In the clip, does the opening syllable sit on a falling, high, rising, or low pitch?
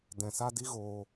low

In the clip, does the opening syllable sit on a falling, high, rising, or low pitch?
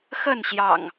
falling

